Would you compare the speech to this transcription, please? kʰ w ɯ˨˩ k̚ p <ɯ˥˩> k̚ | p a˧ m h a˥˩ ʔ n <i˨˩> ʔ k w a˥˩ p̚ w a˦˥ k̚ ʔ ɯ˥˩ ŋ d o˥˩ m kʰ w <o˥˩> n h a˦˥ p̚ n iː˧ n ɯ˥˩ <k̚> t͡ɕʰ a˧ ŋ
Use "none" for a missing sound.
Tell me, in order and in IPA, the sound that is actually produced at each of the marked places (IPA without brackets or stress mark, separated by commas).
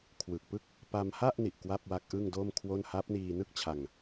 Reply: ɯ˥˩, i˨˩, o˥˩, k̚